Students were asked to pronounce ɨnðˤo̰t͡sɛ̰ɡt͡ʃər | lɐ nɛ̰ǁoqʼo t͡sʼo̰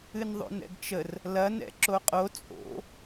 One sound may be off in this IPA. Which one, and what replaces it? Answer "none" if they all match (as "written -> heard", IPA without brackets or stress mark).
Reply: t͡s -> n